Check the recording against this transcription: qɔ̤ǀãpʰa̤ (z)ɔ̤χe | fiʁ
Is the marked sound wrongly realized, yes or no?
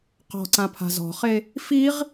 no